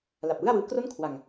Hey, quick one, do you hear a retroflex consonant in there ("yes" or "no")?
no